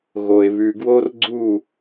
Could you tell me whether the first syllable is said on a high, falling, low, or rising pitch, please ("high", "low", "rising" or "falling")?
low